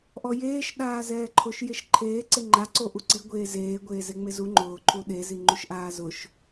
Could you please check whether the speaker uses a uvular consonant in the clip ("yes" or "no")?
no